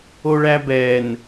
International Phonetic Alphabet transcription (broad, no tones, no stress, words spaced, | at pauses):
oɭæbɛn